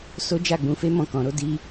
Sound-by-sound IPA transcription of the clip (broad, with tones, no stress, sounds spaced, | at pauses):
s o˦ d͡ʒ a˦˨ ɡ͡b ũ˧ f e˦ m ɔ̃˦˨ k ɔ̃˧ ɾ o˦ d i˦